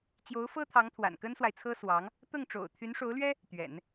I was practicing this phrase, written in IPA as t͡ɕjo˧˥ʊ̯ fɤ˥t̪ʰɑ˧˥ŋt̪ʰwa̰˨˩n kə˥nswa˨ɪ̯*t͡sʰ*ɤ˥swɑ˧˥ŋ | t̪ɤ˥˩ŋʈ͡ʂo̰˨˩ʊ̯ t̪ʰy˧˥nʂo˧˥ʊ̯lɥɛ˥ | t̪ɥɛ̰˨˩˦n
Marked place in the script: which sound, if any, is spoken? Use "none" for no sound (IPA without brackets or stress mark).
t͡sʰ